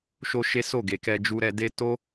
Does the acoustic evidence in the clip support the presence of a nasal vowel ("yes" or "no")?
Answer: no